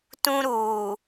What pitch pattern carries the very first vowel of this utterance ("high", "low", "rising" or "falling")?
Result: high